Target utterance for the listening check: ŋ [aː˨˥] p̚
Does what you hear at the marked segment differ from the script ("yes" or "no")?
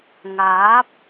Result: no